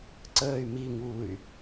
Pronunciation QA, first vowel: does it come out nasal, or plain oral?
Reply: oral